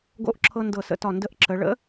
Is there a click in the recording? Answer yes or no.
yes